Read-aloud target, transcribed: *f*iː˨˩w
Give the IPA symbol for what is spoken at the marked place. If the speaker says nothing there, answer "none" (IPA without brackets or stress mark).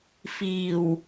f